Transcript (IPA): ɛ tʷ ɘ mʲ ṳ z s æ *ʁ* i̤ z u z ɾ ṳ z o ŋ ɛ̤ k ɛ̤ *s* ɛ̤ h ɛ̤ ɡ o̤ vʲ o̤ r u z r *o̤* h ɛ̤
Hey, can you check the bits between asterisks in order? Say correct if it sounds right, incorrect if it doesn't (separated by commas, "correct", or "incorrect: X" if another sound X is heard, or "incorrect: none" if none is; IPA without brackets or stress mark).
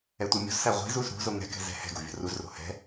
incorrect: ʁʷ, incorrect: z, correct